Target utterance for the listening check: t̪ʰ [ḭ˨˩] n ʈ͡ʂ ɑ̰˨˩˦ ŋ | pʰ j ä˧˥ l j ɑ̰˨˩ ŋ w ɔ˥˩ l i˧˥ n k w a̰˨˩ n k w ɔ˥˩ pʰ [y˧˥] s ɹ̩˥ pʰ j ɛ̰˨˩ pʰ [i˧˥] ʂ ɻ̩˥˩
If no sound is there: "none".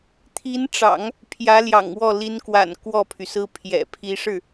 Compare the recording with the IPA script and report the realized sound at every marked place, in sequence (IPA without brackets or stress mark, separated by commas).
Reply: i˧˥, y˩, i˧˥